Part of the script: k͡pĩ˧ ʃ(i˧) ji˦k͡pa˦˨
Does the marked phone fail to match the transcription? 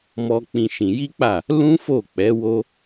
yes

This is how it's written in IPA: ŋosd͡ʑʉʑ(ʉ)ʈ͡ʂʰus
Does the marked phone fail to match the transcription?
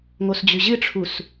yes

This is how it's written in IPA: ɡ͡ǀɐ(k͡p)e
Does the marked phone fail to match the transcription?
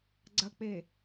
no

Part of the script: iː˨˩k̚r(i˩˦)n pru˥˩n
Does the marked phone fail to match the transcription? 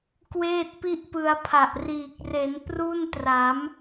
yes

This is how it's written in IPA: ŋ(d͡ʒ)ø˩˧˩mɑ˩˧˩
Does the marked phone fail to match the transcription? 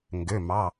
yes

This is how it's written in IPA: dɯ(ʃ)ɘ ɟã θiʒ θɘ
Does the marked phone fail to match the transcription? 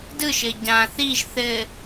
no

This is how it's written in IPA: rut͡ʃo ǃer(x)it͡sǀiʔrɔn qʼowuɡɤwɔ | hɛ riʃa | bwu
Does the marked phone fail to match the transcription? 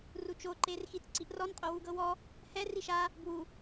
no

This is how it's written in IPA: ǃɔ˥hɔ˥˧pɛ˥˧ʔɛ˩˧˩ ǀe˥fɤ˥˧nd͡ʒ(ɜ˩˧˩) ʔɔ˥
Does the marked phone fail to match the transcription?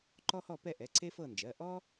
no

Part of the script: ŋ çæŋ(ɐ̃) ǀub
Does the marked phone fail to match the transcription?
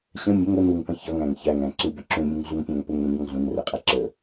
yes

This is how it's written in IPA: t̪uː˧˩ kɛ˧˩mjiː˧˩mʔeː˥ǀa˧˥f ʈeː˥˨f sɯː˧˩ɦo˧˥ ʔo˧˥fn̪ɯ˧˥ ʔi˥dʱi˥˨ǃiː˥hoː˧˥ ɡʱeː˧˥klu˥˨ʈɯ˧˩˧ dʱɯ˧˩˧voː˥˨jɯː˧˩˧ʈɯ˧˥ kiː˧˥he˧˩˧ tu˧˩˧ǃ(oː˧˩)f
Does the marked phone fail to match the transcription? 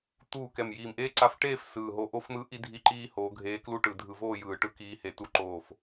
no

